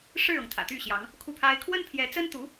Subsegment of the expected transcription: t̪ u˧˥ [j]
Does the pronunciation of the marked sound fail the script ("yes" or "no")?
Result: yes